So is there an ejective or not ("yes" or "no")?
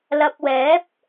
no